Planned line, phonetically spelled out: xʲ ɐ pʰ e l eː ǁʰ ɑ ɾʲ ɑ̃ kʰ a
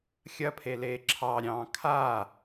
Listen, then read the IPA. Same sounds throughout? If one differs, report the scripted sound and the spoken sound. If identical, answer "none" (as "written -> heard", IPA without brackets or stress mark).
none